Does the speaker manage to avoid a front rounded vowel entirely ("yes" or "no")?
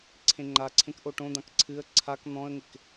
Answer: yes